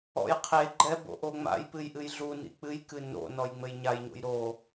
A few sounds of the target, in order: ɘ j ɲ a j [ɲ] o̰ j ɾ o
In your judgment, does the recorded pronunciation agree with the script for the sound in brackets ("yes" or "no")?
yes